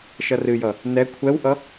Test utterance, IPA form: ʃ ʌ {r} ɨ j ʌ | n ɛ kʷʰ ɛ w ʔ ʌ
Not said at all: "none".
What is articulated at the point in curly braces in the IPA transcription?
r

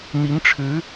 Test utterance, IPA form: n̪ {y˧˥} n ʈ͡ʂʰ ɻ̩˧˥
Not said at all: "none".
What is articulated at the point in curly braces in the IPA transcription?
i˧˥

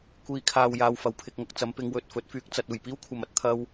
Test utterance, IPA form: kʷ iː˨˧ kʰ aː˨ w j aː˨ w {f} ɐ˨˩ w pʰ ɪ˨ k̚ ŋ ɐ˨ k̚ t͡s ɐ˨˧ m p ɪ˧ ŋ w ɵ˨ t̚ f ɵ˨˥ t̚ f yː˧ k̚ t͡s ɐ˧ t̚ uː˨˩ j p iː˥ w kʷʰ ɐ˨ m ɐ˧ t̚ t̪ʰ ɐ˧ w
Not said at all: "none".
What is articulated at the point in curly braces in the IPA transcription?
f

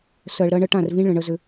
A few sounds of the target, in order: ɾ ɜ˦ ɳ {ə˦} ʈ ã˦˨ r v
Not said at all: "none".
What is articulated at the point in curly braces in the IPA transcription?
ə˦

